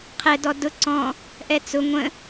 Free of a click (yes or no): no